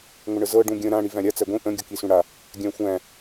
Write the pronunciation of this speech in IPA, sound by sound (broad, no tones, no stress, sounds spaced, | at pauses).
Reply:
ŋʷ ə ɳ ə z ɤ ɖ ũ ɡʲ ə̃ ɾ ã ɽ i v æ̃ ɾʲ a t͡s æ ɡʷ ĩ ʔ ə̃ ɡʲ ɤ k i s ũ ɽ a | ɡʲ æ̃ xʷ æ̃